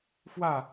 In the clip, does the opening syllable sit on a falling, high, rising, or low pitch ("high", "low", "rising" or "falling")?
falling